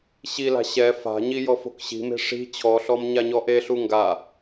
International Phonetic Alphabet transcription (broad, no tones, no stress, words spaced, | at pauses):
ɕila̤ ɕɛ fa̤ɲi jɔfo̤kɕi̤me̤ ʂi̤ t͡ɕʰɔɬɔm ɲaɲɔʔeɬu ŋɡa